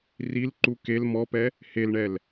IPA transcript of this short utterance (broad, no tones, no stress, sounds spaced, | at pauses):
r i l ǃ u k e l m ɔ p ɛ | h e l ɳ ɛ l